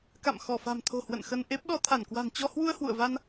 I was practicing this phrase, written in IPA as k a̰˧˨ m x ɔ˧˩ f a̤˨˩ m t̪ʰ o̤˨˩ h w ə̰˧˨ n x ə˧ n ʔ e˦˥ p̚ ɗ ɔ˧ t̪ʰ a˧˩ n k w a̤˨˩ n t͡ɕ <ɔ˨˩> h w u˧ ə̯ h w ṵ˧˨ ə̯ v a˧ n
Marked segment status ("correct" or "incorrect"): incorrect